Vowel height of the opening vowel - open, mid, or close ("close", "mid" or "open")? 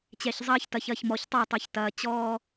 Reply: mid